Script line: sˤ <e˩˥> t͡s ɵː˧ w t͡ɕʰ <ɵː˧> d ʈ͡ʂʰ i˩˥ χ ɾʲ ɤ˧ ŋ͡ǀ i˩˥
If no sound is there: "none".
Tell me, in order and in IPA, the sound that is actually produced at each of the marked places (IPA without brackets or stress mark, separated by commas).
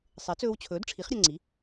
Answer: e˩˥, ɵː˩˥